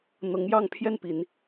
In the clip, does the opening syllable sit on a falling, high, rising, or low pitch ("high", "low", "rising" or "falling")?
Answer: rising